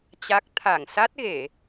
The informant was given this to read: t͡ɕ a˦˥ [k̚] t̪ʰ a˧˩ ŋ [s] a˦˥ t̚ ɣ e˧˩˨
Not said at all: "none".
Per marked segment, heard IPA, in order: k̚, s

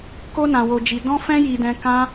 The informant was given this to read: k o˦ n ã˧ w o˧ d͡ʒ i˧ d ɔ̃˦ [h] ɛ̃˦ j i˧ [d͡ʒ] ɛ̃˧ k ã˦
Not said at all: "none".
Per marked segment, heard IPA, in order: f, d

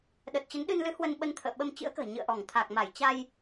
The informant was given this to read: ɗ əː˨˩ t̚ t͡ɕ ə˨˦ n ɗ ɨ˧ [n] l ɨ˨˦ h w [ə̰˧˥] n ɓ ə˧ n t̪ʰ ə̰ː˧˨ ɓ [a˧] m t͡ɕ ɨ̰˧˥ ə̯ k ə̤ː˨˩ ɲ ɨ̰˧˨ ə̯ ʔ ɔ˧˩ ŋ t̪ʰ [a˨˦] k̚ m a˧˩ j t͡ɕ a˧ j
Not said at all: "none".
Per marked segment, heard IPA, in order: n, ə˧, ə˧, a˨˩

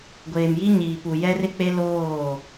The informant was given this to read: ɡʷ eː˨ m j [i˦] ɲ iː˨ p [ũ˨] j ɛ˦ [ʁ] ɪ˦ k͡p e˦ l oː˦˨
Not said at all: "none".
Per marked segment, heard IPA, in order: i˦, u˨, r

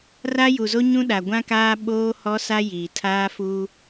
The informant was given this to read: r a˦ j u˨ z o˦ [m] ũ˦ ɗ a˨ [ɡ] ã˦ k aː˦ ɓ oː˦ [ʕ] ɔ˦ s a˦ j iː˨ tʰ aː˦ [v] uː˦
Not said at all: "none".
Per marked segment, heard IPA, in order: ɲ, ɡʷ, h, f

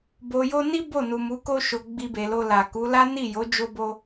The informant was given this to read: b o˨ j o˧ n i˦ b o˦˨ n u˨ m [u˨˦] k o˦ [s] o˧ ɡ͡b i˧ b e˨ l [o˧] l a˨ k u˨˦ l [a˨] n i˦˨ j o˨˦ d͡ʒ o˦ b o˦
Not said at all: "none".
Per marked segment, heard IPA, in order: u˨˦, ʃ, o˧, a˦

